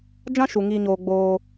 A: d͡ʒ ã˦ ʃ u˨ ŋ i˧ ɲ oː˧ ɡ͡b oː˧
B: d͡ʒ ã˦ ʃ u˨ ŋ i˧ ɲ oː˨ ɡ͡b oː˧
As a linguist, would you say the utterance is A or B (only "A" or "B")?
A